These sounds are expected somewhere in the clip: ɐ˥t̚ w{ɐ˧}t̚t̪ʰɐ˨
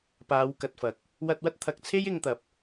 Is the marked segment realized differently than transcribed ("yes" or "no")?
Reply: yes